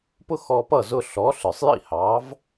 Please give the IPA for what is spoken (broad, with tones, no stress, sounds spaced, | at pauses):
p ʊ˥ x ɔ˧ p ʌ˥˩ z ʊ˧ ɬ ɔ˩˥ ɬ ə˞˩ sˤ j ḭ˥˩ h ɑ˩˥ v